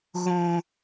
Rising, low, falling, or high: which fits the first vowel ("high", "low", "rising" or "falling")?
low